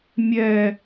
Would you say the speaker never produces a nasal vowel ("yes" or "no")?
yes